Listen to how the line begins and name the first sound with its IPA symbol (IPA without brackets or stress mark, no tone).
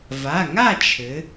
v